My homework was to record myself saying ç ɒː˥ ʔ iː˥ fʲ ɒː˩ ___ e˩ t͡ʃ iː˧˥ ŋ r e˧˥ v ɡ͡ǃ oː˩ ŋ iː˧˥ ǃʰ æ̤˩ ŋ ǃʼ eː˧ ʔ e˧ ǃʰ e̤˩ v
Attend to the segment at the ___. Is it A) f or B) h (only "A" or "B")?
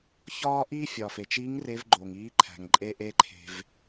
A